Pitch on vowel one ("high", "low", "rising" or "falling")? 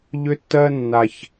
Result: high